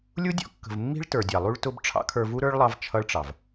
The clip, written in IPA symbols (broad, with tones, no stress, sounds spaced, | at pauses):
lʲ u˦ dʲ ɔ̰˦ kː ə̤˨ v mː i̤˦ ɭ t ə˞˨ dʲ ɑ˨ lˠ u˧ ɭ t ʊ˧ b ʈ͡ʂʰ ɑ̰˦ kʰ ə˞˧ v u˦ ɾ ə˞˦ ɭ lˠ ɑ˦ v t͡ʃʰ ʌ˦ ɭ ʈ͡ʂ ɑ˨ v